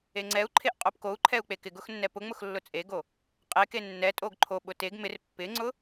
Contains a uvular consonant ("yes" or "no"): yes